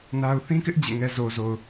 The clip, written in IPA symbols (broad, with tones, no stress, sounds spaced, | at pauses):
n a˦ ʊ̯ θ ĩ˦ k ɪ˦ ʔ d͡ʑ ḛ˦˨ ŋ ɛ˦ z o˨ z o˨ ʊ̯